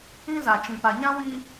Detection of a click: absent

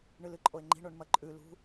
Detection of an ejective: present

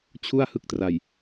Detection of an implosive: absent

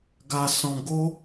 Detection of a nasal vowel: present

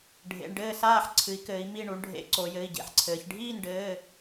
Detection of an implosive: absent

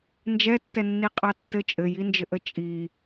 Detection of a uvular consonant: present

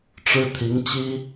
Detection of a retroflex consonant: present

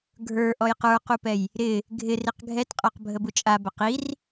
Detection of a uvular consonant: present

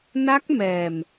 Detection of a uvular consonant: absent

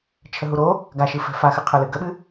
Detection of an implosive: present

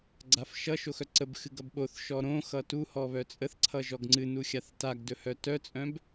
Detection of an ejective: present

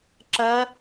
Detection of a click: present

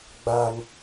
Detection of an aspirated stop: absent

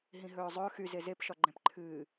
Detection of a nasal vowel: present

